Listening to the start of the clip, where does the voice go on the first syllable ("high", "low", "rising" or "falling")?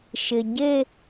low